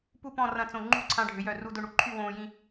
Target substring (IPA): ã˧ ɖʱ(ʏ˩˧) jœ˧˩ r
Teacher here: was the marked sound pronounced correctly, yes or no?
yes